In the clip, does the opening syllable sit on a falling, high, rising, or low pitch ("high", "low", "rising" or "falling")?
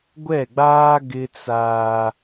falling